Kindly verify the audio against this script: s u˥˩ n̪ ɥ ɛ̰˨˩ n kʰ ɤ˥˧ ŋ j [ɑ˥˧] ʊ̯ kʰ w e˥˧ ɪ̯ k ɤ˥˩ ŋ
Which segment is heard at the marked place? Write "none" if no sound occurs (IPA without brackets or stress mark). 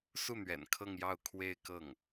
ɑ˥˧